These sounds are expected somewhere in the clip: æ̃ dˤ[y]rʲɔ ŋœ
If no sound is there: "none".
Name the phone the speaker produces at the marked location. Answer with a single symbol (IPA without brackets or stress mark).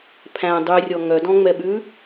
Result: y